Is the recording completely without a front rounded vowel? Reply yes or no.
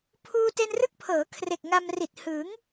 yes